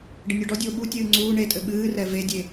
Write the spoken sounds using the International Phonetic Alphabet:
ɖɘnʲɔɖɔdʲoː ɓutʲɨː ŋ͡ǀuː ɳetʼɘ ɓɨː rɛvedʲe

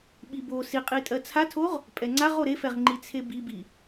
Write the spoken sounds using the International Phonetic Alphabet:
ɓibo siqʼitʼɜ t͡sʰatʰoʁ | pʼɛŋ͡ǀaʁo ɾefɛʁ ŋ͡ǃit͡sʰebibi

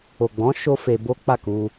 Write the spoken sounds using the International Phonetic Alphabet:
o˨ɡ͡bɔ̃˨˦ ʃo˦fe˧ bo˦ k͡pa˦˨ku˧

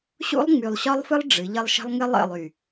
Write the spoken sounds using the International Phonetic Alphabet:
ɕṵ˦lˠŋ͡my˨lˠɕɒ˦lˠfɨ˦lˠ ɖ͡ʐɨ˨˦ʎɘ˦lˠ ʃə̤˦lˠ ŋɘ˦lˠə̰˦˨lˠy˨

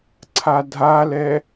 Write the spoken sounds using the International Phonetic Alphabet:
ǀʰadʱalɛ

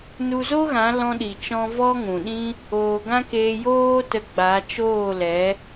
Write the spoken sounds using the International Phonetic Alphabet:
nu˧zo˦ɣã˨˦ lɔ̃˧ɗi˨t͡ʃɔ̃˧ vɔ˦ŋũ˨ɗĩ˦ | oː˧ ɡã˦keː˧joː˦ tə˧ɡ͡ba˨˦t͡ʃoː˦˨lɛ˨˦

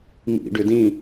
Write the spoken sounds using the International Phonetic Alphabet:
mḭ ɖʏdĩ

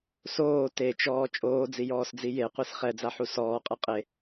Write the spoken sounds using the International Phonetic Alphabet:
soː tet͡ʃɔː t͡ʃʼoːd͡zijɔːsd͡zi jeqʷis χɛd͡zaħu sɔːqʼɯ qʼe

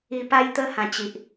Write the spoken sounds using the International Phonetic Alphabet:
i˨˩ pa˧jt̪ə˧ hã˨˩t͡ɕi˨ʔ

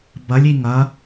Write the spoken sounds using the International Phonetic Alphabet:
bɐlʲi ŋɐ

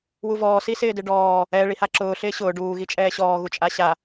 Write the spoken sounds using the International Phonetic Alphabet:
wuvɔː sisɪːdɪɖɔː | ɛ ɭihaǁʊː ɬɪːɕʊː ɖuː ɣit͡ʃʼɛːɕɔː ɣut͡ʃʼaɕa

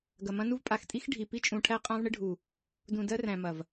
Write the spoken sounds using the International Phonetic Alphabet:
ɡɐ˨mɐ̃˦nu˦v pʼa˨x tʼi˦x ɖʱi˨ pi˦t͡ʃʼũ˨ʈʰæ˦ qʼã˦vɳɪ˦ɖʱu˨ | dũ˨ dɜ˦ræ̃˨ mɐ˨v

